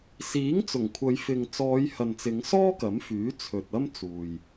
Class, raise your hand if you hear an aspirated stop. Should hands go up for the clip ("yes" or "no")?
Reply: yes